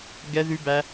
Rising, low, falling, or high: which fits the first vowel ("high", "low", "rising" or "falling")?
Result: high